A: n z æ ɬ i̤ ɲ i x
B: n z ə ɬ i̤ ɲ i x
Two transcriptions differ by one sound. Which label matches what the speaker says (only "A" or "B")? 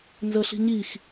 B